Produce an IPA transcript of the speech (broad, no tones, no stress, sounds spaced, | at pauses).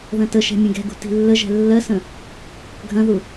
ð ɐ̃ t ə ʃ ɛ̤ mʲ ɐ̃ ɡ ɛ̤ ɡ ṳ t i̤ lː ə ʒ ɛ̤ lː ɜ s ə̃ | ɡʱ ɐ̃ ð u